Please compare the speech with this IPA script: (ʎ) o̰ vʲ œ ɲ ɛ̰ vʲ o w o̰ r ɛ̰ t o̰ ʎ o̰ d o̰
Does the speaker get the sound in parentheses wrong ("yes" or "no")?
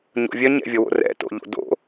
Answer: yes